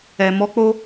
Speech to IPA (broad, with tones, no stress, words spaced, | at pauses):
ɛ˨ mɔ˧k͡po˧